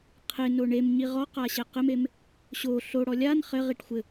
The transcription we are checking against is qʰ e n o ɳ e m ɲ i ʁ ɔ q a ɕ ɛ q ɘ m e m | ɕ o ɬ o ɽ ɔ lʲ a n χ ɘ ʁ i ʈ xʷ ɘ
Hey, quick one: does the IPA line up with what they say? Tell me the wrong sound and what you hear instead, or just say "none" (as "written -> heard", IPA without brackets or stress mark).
none